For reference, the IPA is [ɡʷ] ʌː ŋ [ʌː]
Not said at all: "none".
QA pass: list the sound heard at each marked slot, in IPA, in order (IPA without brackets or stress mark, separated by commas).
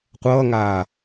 qʷ, aː